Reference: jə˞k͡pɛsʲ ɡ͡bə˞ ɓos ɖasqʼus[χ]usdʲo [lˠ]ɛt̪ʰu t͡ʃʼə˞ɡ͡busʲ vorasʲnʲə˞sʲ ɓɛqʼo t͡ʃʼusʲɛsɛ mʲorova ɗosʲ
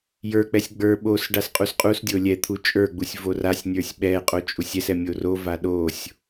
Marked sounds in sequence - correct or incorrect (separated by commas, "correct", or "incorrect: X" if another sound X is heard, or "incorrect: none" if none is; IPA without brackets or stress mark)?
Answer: incorrect: qʼ, incorrect: lʲ